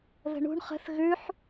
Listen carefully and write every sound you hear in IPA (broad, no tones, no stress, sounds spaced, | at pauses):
ð ə̤ ɳ ṳ ɳ χ ə̤ θ ɣ ʉ ħ